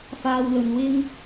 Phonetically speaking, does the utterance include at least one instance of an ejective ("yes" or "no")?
no